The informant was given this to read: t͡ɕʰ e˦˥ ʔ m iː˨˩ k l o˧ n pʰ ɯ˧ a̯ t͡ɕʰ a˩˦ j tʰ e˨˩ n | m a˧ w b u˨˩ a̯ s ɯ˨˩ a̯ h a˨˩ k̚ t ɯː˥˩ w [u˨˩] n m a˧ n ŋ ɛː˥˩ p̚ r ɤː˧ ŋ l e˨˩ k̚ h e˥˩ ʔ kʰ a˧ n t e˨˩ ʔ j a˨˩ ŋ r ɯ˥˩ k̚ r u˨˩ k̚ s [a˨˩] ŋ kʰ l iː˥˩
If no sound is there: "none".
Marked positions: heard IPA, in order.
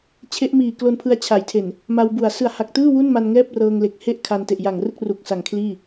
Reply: u˥˩, a˨˩

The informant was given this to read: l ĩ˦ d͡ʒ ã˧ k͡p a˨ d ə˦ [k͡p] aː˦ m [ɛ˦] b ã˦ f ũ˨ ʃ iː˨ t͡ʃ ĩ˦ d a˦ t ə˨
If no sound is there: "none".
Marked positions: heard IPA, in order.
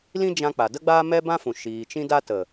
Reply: ɡ͡b, ɛ˦

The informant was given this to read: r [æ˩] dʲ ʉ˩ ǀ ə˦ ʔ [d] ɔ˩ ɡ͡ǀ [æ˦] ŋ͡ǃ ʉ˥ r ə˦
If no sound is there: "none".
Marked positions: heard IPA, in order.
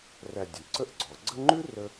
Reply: æ˨, ɡ͡ǀ, ə˦

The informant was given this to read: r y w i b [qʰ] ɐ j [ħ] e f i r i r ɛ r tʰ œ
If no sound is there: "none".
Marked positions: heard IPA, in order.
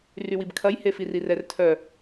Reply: kʰ, h

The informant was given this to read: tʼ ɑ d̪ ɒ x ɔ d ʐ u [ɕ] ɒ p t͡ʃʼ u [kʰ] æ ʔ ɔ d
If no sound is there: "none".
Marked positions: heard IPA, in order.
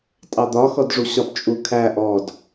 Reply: ɕ, kʰ

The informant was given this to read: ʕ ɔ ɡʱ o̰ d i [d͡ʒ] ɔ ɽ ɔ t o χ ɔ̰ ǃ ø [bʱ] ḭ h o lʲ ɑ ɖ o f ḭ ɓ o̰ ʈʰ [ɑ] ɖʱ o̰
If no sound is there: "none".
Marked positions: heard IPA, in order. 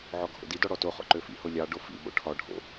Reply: d, f, ɒ

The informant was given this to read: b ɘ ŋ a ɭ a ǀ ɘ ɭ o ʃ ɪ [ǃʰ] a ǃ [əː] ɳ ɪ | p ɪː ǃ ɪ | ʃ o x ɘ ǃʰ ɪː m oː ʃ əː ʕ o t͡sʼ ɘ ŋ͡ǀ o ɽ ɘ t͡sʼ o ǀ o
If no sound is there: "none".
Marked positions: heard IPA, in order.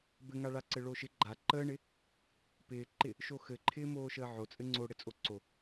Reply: ɡ͡ǃ, əː

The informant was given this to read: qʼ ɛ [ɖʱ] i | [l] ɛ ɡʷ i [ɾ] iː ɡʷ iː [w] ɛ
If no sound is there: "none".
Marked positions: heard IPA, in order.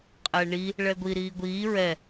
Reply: ɳ, ɭ, ɾ, ɹ

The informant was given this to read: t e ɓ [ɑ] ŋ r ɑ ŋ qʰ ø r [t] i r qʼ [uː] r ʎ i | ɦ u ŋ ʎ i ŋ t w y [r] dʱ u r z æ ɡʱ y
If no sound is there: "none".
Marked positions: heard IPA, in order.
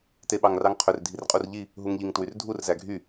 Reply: ɑ, dʱ, u, r

